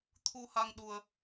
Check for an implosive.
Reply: present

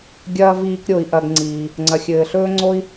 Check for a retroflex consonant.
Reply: absent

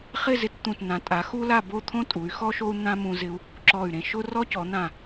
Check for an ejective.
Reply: present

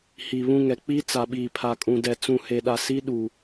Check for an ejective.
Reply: present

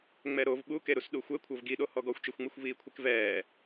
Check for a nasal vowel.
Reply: absent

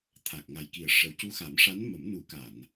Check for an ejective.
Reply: absent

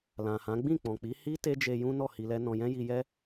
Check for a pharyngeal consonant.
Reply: absent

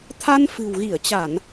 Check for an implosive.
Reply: absent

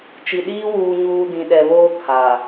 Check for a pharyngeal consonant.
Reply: absent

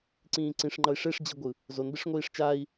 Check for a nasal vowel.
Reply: present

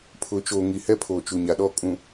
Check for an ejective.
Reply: present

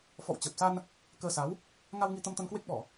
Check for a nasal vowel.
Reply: absent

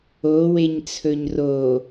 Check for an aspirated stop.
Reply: present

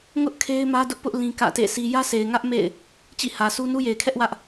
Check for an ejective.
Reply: absent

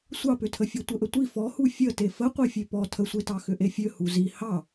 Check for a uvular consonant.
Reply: present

